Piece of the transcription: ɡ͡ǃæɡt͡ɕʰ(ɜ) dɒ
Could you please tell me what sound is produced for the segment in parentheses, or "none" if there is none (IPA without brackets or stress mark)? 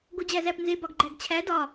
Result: æ